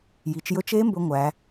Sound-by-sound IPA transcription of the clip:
j i˩˧ t͡ʃ j ɵ˦˥ t͡ʃ e˦˥ m b ɵ˦˥ ŋʷ æ˩˧

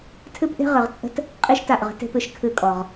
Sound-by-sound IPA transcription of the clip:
tʰ ɨ˦ p ʔ e̤˦ ʁ ɨ˨ ʁ t͡sʼ ə̤˦ t | qʼ i˦ ʃ t a˦˨ ʔ ʁ ə̤˦ t e̤˦ p ɨ˨ ʃ kʰ ɨ˦˨ kʼ ɔ˨ ʁ

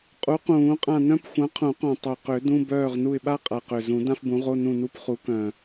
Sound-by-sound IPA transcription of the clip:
qʼ u˨˥ q ũː˨˩˦ qʼ ã˦˨ n œ̃˥ p xʷ ã˨˥ qʰ ũ˨˩˦ q œ̃˨˩ tˤ ø˨˩ q ø˨˩˦ d ũ˧˥˧ b œː˦˨ ʁ n u˦˨ ɪ̯ ɓ a˥ qʼ a˨˩ q ø˨˩ z ũ˨˩˦ d ã˥ f b ũ˨˥ ʁ o˧˥˧ n ũ˦˨ n u˧˥˧ p χ u˨˥ k œ̃˨˩

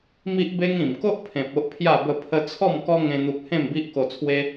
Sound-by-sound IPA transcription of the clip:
m i˦ ʔ b e˦ ŋ ĩ˨˩ m k o˦ ʔ pʰ ẽ˨ p̚ o˦ ʔ pʰ j a˥˧ b ə˥˧ pʰ ə˦ t͡sʰ ɔ˥˧ m k ɔ˦ ŋ ẽ˦ n̪ u˦ k̚ h ẽ˥˧ m b i˦ ʔ k o˧ t͡sʰ w e˦

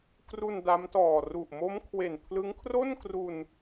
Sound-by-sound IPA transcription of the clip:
k r u˧ n d a˦˥ m t ɔː˨˩ r u˨˩ ʔ m o˦˥ m kʰ w e˨˩ n pʰ l ɯ˦˥ ŋ kʰ r o˥˩ n k r u˧ n

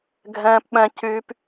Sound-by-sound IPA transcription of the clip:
ɡʱ ɛ̃ː˦ p ɓ ɛ̃˦ c yː˦ p

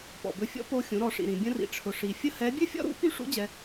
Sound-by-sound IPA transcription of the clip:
p ɔ̰˩ b ɵ˧ fʲ ɔ̰˧˥ p o˧ xʲ ũ˩˧ ɾ ɔ˩˧ ʂ ḭ˩ ɾ ĩ˩ bʲ ə̃˧ r ḭ˩ ʈ͡ʂʰ ʊ˩ ʂ i˩ fʲ ə˥ h ɛ˧˥ bʲ ɨ˥ fʲ ɔ̰˥ ɾ ṵ˧˥ p y˥ ʂ ṵ˧˥ d͡ʑ ɛ˧

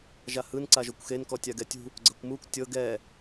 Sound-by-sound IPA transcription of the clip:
ʒ a h ɯ n ǀ a ʒ o kʷ x e n k ɔ tʲ a ɡ ɛ tʲ ṳ | ɡ͡ǀ ɤ kʷ m u kʷ tʲ ɤ ɡ ɛ

